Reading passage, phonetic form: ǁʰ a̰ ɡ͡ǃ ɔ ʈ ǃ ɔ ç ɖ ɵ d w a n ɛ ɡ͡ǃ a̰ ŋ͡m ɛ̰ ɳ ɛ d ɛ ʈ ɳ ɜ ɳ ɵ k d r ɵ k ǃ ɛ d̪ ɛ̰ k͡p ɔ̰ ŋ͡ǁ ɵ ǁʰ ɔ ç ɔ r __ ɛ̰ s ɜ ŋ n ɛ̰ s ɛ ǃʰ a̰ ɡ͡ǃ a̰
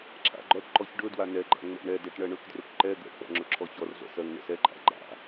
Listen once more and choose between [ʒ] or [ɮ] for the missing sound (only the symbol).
ɮ